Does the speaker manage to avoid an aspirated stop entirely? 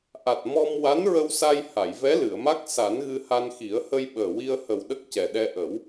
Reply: yes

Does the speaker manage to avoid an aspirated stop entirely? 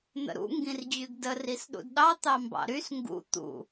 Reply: yes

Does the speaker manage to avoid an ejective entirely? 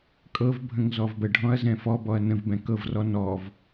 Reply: no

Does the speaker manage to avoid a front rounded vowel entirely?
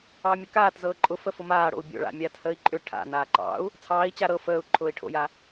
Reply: no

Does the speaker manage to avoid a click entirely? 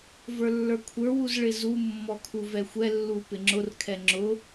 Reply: no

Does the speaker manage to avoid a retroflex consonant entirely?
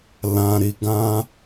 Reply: yes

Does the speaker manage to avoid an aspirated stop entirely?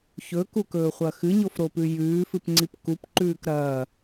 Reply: yes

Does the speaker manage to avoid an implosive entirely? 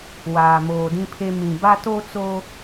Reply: yes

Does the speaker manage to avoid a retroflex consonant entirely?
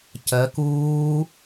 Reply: yes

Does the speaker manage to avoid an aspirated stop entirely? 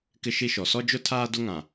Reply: no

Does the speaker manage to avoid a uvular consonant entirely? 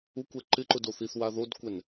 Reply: yes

